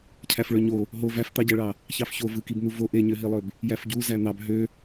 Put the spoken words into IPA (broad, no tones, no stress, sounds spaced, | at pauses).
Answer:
cʰ æ f ɭ ø ɲ o | ɦ o v æ f t̪ ɑ ɟ æ ɭ ɑ | ç ɑ f ç o v ɯ k i b n̪ u v o ʔ e ɲ ø ɦ i lˠ ø b | j æ f ɟ u z æ n̪ ɑ b ɦ ø